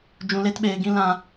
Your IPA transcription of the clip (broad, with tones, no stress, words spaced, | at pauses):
d͡ʒũ˧le˦tɓeː˧ɡĩ˦ lã˦